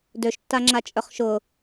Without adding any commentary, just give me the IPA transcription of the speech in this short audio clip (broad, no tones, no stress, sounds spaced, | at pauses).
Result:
d ø ʃ tː a ŋ͡ǁ a t͡ʃʼ œ χ ʃ ʊ